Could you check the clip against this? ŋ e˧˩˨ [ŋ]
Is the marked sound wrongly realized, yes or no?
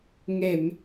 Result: yes